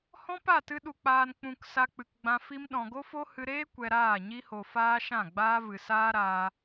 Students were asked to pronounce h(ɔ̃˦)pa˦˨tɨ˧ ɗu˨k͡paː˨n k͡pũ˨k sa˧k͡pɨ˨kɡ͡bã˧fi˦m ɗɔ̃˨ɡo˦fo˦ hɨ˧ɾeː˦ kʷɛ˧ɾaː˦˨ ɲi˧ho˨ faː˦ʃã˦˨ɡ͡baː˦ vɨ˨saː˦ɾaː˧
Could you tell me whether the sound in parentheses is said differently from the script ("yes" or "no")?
no